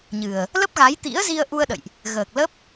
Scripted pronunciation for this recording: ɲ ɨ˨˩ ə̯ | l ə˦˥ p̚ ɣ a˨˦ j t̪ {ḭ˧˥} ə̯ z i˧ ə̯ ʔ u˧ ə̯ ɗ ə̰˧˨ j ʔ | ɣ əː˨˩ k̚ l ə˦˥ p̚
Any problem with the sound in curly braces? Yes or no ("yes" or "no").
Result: no